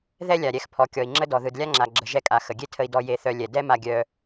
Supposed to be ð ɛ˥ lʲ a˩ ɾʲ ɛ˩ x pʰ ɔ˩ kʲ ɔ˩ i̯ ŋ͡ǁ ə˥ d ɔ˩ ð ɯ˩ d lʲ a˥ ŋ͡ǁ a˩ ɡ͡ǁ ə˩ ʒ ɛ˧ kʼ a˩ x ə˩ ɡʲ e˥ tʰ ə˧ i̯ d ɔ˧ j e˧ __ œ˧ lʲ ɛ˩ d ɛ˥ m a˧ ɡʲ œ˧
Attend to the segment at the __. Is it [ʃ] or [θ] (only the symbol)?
θ